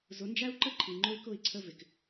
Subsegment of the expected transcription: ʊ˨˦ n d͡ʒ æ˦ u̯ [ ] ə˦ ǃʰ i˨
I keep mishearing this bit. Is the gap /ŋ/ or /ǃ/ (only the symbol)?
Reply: ǃ